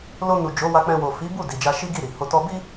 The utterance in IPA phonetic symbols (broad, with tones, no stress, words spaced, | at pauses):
lo˧nu˨ d͡ʒo˨˦wa˧k͡pɛ̃˧ wo˨fi˨˦ bu˦˨ di˨d͡ʒa˧ʃi˦ ɡi˦˨ɾi˨ho˧tɔ˦ bi˦